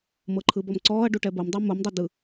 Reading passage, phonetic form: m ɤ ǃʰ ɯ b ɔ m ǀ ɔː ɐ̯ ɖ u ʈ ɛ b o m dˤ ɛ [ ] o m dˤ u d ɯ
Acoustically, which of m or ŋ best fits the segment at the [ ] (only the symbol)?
m